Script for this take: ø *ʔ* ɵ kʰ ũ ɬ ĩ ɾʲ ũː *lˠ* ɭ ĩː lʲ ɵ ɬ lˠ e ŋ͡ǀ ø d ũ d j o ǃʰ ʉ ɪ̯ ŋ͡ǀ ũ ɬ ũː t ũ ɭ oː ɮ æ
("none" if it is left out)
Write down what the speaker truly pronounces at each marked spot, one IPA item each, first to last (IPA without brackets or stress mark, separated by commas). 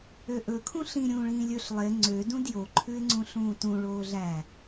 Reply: ʔ, none